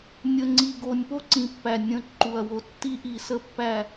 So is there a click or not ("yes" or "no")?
yes